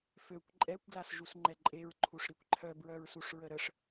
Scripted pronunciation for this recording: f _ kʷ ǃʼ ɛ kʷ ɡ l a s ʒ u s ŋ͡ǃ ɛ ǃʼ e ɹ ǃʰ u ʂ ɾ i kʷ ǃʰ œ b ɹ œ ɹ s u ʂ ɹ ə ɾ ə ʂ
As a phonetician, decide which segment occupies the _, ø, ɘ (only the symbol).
ø